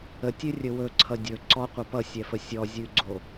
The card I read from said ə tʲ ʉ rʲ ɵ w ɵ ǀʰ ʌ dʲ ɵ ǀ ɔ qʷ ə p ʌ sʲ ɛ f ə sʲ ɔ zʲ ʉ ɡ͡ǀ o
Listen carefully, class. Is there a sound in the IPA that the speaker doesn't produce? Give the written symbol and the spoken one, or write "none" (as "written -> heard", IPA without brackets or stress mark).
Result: none